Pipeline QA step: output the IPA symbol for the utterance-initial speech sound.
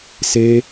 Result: s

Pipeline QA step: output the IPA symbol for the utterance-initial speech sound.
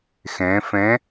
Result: x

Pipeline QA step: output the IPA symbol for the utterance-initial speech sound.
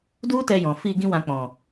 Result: d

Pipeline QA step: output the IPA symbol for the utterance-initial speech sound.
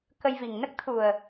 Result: k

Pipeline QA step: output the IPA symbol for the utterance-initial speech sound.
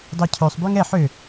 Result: dˤ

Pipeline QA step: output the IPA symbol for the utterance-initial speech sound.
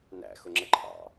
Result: n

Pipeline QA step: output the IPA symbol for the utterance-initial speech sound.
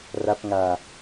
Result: r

